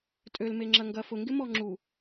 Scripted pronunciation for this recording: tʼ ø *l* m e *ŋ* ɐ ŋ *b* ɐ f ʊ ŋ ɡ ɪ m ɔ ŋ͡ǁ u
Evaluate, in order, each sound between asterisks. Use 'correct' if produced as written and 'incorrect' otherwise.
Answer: correct, incorrect, incorrect

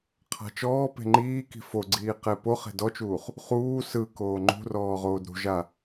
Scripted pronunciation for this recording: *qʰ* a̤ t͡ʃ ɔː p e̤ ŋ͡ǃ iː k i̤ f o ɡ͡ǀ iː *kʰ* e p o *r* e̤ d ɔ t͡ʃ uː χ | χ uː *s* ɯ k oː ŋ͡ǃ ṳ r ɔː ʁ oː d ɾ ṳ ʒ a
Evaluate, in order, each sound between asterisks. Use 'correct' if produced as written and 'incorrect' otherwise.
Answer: correct, incorrect, incorrect, correct

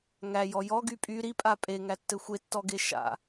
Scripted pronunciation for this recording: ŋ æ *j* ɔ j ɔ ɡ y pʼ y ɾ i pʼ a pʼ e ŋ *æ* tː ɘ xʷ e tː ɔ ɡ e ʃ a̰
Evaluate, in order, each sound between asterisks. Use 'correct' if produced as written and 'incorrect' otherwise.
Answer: correct, correct

